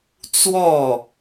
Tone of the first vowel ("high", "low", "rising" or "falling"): falling